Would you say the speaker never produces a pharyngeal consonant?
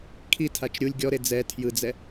yes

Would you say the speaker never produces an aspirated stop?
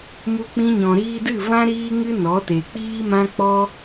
yes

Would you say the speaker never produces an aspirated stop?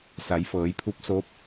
no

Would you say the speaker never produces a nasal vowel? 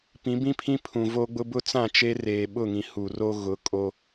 no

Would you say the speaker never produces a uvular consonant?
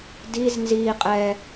no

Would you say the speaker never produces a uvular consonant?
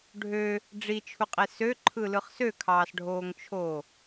no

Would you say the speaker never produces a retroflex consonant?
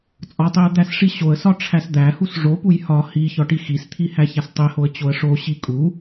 no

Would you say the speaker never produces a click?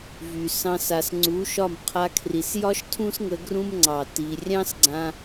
no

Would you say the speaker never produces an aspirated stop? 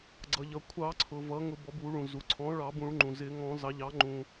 no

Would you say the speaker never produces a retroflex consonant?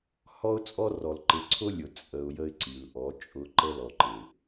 yes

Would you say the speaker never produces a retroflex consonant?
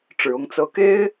no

